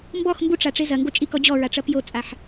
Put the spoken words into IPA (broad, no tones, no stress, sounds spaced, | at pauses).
m b ɔ x m b u ʈ͡ʂ a ʈ͡ʂ e z ɐ ŋ ɡ o t͡ʃʼ i k ɔ d͡ʑ ɔ ɹ a ʈ͡ʂ ɐ p j o t͡sʼ a ħ